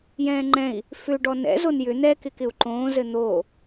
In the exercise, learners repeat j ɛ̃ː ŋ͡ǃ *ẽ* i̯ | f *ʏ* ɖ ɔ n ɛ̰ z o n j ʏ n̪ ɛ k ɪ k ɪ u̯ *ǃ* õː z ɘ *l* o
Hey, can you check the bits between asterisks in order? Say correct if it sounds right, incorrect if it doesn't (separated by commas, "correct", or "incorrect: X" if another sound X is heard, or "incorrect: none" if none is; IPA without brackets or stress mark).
incorrect: ɛ̃, correct, correct, incorrect: n̪